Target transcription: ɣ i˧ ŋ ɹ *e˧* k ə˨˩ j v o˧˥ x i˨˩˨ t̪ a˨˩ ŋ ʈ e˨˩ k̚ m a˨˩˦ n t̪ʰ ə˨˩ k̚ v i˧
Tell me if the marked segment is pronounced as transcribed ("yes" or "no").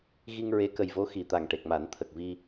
no